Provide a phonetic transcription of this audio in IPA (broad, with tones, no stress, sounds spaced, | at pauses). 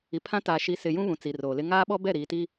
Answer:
i˨ pʰ ã˦ t a˨ ʃ i˨˦ s ɪ˨ j ũ˦ β ũ˨ t͡s i˨ r oː˨ l ɪ˦ ŋ aː˦ ɓ ɔ˦ b ɛ˦˨ ɾ iː˨ t iː˦